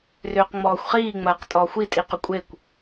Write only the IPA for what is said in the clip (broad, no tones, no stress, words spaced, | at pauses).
rʏːqŋ͡mɔːxʷχiː ŋ͡mɐːqtʼɔːxʷi tʼiqʏkʷʼekʷ